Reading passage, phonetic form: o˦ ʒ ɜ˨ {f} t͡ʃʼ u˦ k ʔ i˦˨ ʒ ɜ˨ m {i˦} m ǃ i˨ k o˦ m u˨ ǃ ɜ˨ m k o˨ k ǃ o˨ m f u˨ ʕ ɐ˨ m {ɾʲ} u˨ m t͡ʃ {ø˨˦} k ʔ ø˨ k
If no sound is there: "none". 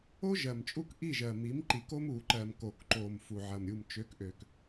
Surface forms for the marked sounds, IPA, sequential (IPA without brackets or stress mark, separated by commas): m, i˨˦, ɾʲ, ø˨˦